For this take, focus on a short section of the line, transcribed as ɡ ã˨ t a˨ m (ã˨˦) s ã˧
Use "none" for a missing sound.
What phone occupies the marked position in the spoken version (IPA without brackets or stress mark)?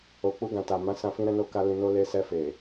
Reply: ã˨˦